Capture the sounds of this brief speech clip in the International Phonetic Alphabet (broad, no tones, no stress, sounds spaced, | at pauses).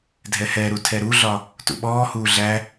dʱ ɛ h ɛ ɾ u tʰ ɛ ɾ u ɮ ɒ | t ṵ ɓ ɔː h uː ɮ æ